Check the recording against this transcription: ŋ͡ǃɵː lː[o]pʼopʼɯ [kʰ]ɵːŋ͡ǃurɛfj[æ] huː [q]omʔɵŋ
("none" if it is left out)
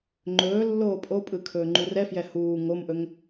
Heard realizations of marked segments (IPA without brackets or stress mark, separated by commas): oː, kʰ, ɛ, ŋ